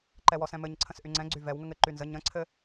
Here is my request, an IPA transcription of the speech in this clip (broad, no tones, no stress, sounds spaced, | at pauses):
ǃ ɛ w ɔ s ɛ̃ m ɘ ɲ ǀʰ ə̃ s ʔ y ŋ͡ǀ ɛ̃ ɡ͡ǀ y v ɛ w ŋ ə ŋ ɘ ǃ y n z ə ɲ ə̃ ǀʰ ɘ